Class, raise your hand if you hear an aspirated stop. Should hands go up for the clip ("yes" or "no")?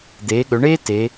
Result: no